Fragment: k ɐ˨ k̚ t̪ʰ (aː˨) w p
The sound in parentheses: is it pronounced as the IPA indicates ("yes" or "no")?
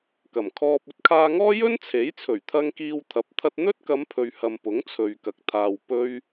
yes